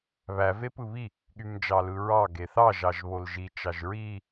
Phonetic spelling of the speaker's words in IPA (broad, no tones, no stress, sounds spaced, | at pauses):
β æ v e p ɯ β i | ɠ y m d͡ʒ ɑ l ɯ ɹ ɑ ɡ e θ ɑ ʒ ɑ ʒ β o l ʒ i t͡ʃ ɑ ʒ ɹ i